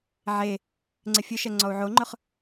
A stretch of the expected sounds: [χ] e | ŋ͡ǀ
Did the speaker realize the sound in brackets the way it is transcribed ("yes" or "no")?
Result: no